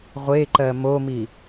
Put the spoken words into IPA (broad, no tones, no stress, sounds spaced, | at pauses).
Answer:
ʁʷ e ǃ ɜ m o m i